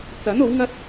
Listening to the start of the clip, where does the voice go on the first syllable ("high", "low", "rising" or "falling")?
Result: rising